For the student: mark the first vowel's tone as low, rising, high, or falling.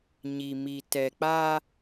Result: low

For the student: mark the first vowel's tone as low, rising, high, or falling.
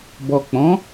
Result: low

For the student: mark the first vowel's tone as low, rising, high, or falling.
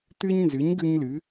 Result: high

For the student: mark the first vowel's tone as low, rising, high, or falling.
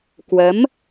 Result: rising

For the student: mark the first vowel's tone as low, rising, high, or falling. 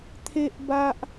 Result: high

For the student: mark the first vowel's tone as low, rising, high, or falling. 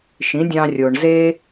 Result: rising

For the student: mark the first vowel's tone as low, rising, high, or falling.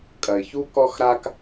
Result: low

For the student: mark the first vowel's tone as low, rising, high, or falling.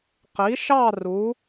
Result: rising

